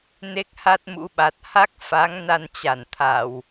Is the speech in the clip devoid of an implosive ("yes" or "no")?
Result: no